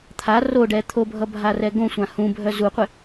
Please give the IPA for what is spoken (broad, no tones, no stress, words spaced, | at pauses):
t̪ʰa roɖɛ t̪ʰobʱʌbʱarɛ ɡõsʷã hũbʱœ zuqʷɪ